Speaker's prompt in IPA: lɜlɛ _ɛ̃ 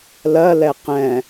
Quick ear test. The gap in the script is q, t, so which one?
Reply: q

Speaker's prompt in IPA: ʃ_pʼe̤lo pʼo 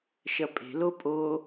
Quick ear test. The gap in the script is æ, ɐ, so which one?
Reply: ɐ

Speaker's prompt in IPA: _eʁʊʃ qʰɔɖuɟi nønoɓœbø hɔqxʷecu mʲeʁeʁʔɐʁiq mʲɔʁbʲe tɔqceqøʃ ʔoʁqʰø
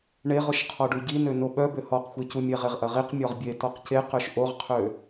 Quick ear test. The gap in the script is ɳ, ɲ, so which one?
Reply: ɳ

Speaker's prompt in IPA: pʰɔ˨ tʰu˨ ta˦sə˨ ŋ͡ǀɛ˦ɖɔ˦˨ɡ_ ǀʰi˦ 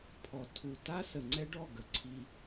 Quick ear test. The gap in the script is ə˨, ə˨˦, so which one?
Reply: ə˨˦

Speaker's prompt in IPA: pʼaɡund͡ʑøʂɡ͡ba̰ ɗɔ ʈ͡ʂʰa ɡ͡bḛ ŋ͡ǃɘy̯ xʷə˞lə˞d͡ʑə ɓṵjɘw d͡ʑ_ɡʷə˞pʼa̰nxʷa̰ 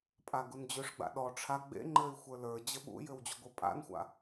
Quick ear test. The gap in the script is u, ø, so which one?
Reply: u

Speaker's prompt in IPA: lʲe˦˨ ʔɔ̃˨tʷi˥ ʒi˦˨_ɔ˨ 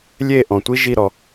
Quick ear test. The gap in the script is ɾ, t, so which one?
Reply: ɾ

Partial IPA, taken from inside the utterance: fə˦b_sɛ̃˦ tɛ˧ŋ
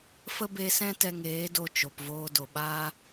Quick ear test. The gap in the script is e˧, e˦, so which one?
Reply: e˧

